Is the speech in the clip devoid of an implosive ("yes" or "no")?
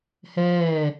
yes